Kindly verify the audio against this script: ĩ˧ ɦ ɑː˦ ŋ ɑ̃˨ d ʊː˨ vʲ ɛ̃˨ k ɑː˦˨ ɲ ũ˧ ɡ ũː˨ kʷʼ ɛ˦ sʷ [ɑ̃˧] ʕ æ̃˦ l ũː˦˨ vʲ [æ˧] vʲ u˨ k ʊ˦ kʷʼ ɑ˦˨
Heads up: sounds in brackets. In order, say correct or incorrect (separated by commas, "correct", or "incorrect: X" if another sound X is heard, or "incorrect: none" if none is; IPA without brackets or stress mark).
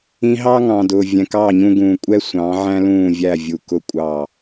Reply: incorrect: ɑ̃˨˦, incorrect: æ˦˨